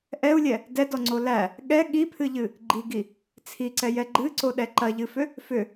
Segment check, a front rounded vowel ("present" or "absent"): present